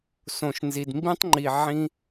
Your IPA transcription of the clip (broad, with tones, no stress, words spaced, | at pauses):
sõ˨ʃnzi˨d mbĩ˦tˤŋ͡ǃi˨ ʕĩ˦